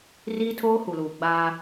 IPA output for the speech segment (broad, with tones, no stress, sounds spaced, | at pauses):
r iː˦ tʰ oː˦ h u˨ l uː˨ ɡ͡b aː˦